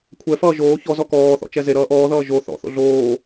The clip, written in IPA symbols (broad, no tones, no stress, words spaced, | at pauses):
kʷʰɛfʌː ʒoː çɔzɔ kɔːθɔ̰t͡ʃɛ zeɾʌː ʔɔːðʌː ʒo θɔ̰θo̰ ɮoː